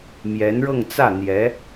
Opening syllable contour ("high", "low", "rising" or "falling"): rising